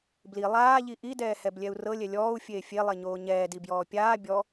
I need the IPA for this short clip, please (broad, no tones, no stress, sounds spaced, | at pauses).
b l i lˠ aː ʎ i ʔ i d ɛː h ɛ b lʲ ɛ u̯ r ɤ lʲ ɛ lʲ ɔː u̯ fʲ eː fʲ e lˠ e ɲ oː ɲ ɛː d i b j ɔː pʲ aː bʲ ɔ